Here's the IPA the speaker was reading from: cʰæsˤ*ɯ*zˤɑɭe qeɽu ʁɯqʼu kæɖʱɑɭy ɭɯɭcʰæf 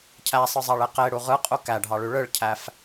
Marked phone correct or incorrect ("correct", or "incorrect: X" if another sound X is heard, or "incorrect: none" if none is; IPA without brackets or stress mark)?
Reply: correct